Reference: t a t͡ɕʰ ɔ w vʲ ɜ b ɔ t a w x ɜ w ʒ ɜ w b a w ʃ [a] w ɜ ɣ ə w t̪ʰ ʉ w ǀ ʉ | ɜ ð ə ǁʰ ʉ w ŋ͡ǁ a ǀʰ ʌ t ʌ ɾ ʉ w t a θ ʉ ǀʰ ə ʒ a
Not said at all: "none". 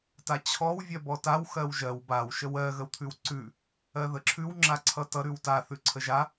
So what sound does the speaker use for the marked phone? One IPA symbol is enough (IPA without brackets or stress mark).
ə